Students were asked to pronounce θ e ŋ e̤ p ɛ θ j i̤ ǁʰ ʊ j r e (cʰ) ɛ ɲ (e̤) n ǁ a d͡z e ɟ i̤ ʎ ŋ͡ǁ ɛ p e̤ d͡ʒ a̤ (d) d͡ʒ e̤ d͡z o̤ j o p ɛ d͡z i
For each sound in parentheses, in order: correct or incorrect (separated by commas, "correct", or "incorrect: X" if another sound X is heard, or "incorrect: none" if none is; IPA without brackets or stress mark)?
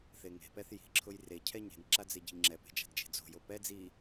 correct, correct, correct